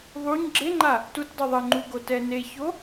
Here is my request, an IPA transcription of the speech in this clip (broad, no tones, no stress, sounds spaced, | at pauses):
ðˤ u ɲ ɡ͡ǁ e ŋ͡ǃ a | t u t dˤ u ðˤ ɘ ŋ͡ǃ u ɡ o t ɛ n e ç o